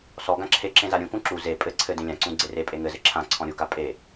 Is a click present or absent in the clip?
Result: present